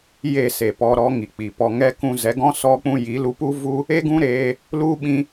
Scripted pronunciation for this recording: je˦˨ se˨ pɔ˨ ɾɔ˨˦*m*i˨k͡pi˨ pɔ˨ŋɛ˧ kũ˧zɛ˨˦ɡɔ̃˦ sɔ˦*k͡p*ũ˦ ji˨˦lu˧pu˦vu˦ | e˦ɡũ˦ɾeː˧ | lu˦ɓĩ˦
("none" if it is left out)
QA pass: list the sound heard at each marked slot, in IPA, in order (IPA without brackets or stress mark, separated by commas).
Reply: ŋ, k͡p